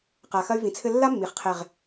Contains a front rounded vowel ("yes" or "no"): yes